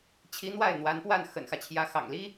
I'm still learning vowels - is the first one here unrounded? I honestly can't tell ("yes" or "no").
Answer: yes